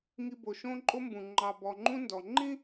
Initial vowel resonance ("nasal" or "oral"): oral